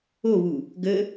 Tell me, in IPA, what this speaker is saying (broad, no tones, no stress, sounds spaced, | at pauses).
o β u | ɡ ə